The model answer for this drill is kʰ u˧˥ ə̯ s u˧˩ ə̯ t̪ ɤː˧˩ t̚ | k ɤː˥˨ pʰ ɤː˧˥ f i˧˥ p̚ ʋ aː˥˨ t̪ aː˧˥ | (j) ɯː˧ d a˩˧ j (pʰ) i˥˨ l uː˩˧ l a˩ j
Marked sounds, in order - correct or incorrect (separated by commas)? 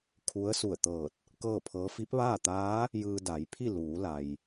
correct, correct